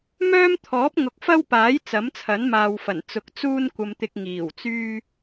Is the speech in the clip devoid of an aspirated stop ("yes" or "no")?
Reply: no